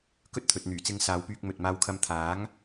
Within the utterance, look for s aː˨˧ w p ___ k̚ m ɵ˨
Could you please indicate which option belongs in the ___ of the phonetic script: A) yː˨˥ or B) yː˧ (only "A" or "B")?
B